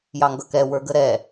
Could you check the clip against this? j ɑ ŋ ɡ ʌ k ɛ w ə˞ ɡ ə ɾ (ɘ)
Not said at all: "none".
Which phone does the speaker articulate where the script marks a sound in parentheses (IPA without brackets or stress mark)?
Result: ɛ